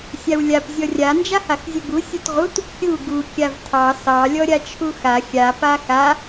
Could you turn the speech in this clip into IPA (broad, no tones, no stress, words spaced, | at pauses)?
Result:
sʲawlʲap zʲɔrʲa nd͡ʒahaxzʲuɡu sʲutʁut | kʲu ɡu kʲavtʰɑ sɑ lʲɔɾʲat͡ʃʰuxa xʲa paxa